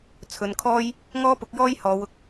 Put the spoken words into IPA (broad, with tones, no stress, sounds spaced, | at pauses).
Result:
t͡sʰ ɵ˨˧ n kʰ ɔː˥ j | ŋ ɔː˥ p ʊ˨˥ k̚ j ɔː˥ j h ɔː˨˧ w ʊ˧ k̚